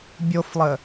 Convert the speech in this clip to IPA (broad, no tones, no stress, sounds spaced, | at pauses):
bʲ o f lˠ ə